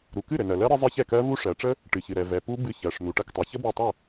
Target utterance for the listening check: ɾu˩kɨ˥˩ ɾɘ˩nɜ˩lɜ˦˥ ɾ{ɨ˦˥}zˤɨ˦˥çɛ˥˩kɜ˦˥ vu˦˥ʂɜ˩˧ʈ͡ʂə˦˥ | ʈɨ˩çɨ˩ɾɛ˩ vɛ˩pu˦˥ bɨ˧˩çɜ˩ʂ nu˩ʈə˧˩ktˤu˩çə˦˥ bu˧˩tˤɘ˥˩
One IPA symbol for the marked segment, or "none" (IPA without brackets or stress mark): ə˦˥